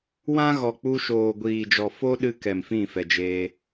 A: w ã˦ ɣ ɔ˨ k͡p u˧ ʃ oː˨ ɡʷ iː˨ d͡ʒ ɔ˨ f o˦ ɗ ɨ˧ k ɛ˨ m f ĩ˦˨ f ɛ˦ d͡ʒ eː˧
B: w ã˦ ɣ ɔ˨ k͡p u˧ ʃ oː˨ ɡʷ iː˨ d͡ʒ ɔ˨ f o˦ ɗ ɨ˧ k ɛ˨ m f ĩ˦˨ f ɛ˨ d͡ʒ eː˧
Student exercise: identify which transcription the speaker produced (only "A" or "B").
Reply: B